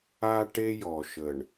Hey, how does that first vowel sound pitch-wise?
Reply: high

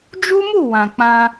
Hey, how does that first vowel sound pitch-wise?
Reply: high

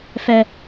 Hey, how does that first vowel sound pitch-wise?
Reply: low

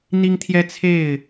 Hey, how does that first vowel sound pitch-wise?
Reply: high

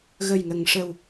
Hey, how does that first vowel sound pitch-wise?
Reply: low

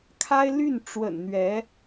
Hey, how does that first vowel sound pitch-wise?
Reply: high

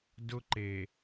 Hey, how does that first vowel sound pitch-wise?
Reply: high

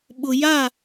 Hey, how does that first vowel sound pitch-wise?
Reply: low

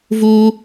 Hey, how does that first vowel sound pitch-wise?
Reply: high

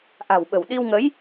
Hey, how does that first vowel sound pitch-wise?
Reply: low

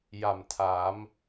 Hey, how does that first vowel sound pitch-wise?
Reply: low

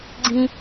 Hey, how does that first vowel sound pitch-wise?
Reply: high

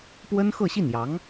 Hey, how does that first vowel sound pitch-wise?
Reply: high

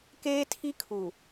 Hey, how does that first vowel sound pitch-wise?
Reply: high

